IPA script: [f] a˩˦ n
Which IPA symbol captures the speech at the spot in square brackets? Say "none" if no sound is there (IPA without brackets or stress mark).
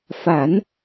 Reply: f